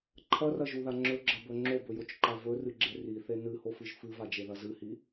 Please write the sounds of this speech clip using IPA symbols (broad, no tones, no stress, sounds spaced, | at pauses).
ǃʰ ɐ r ɐ ʒ u ð a ŋ͡ǁ ɵ ɡ͡ǁ ɐ b ɵ ŋ͡ǁ o b ɵ j o t͡ʃ ǃ a v ɵ r ɨ ɡ͡ǁ e r i θ e n ɨ h o f ɨ ʒ f ɨ v a d͡ʒ e ð ɐ z ɨ h i